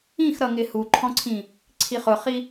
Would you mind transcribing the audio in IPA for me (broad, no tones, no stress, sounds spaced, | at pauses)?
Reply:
ĩ x ɾ ʌ ŋ ɪ h u ǃʰ ɔ̃ ǀʰ ĩ | ǀʰ i χ ʊ χ i